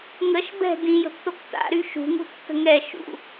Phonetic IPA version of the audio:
ŋ ə ʃ b ɛ̤ d ĩ j ə̤ b t o k t a̰ ɾ y ʃ ṳ ŋ ṳ tː ə̤ ŋ ɛ ʃ ṵ

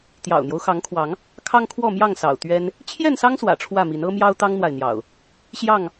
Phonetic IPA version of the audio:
t̪ j ɑ̰˨˩ ʊ̯ n̪ j o˦ ʊ̯ x ɑ˨˦ ŋ kʰ w ɑ˨˦ ŋ | kʰ ɑ˦ ŋ kʰ w ɔ˥˨ m j ɑ˥˨ ŋ s ɑ̰˨˩ ʊ̯ t̪ ɥ ɛ˦ n | t͡ɕʰ j ɛ˥˨ n s ɑ˦ ŋ s w ä̰˨˩ ʈ͡ʂʰ w ä˥˨ m i˨˦ n ɤ˦ m j ɑ˦ ʊ̯ t̪ ɑ˦ ŋ n̪ w a˨ ɪ̯ n̪ j ɑ̰˨˩ ʊ̯ | ɕ j ɑ˥˨ ŋ

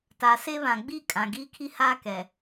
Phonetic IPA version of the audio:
t a˨ s e˦ β ã˨ ɡ͡b i˦˨ kʼ ã˨ ɡ iː˦ kʰ i˦ h aː˦ k ɛ˨

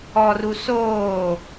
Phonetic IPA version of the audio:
ɔ r u s oː

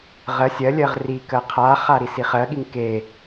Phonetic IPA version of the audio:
ʁ ɜ sʲ ɜ lʲ ɜ ʁ r i k ɜ qʰ a χ a ɾ i s i χ ɜ ɠ i ŋ k e

